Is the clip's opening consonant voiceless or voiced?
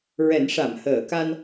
voiced